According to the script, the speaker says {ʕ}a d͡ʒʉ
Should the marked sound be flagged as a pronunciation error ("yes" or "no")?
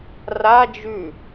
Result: yes